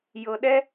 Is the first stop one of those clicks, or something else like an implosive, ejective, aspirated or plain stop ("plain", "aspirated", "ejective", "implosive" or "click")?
implosive